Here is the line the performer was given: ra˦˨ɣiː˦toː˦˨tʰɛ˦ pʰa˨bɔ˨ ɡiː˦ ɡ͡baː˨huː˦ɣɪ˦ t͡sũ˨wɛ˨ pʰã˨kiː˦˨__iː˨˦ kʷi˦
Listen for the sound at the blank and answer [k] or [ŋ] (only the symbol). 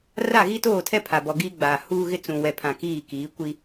k